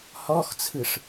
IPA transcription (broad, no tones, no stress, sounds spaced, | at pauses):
h ɔ x t͡sʰ ɯ ʂ